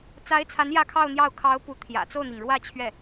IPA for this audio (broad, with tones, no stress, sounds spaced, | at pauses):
t͡s a˧˥ ɪ̯ t͡sʰ a˧˥ n j ä˥˧ kʰ ɑ˥˧ ʊ̯ n̪ j ɑ˥˩ ʊ̯ kʰ ɑ˧˥ ʊ̯ p u˧˥ t̪ʰ j ä̰˨˩ t͡s o˥˩ ʊ̯ n̪ i˩ ŋ ɻ w ä˥˧ t͡ɕʰ ɥ ɛ˥˩